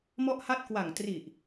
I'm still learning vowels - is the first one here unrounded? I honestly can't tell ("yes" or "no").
no